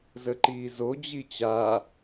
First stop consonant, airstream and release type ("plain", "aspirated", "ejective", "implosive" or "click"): click